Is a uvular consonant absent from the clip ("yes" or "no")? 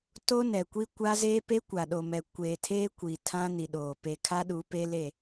yes